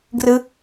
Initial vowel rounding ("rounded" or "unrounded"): unrounded